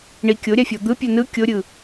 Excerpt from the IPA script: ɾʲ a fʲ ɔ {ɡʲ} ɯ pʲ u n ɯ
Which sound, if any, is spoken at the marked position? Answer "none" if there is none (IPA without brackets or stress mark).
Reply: d̪